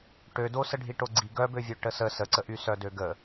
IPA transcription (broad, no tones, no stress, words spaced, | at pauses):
ʈødo səɖʱiʈoɡ͡ǀi ɡœbøvʲøʈə sə səǀəʔy sœdøɡə